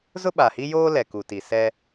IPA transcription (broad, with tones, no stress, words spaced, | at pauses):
zʊ˦ɓa˨hi˦joː˦ lɛ˨ku˨ti˨ sɛ˦